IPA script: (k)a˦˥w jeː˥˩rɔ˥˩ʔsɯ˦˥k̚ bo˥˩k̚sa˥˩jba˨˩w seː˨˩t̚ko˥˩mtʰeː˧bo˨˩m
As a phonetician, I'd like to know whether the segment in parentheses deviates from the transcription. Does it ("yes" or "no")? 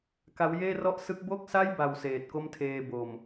no